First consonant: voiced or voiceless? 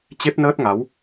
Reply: voiceless